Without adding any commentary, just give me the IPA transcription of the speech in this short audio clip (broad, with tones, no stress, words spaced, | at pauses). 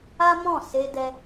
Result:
a˦mɔ̃˦˨ se˧dɛ˧